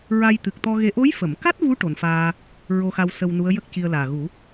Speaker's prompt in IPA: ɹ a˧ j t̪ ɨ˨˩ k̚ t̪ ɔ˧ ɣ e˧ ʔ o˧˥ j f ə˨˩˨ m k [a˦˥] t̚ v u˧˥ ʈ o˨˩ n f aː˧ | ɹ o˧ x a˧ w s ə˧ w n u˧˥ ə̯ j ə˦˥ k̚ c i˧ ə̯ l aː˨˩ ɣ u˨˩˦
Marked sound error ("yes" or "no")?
no